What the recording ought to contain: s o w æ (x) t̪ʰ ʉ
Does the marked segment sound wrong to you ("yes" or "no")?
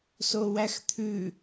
no